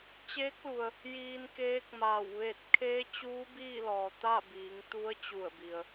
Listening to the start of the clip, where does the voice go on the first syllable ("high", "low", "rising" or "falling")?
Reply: rising